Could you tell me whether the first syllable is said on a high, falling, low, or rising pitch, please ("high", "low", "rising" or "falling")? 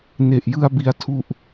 low